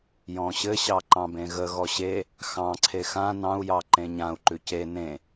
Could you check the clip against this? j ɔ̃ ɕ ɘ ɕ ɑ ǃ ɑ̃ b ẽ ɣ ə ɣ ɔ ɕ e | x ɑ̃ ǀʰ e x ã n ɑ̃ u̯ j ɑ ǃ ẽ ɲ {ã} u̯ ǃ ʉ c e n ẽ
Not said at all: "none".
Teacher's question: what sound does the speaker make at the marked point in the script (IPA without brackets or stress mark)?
ã